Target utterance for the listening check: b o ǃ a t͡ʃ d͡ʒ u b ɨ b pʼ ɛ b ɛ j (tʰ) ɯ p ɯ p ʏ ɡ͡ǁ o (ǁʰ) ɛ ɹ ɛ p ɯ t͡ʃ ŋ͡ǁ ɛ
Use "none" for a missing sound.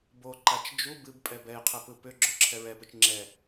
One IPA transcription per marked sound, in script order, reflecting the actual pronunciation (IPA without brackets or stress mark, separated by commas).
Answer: qʰ, ǁʰ